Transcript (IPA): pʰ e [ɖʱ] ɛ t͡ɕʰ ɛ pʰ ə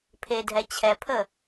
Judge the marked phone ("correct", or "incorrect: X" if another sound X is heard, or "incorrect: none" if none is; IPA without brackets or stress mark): incorrect: dʱ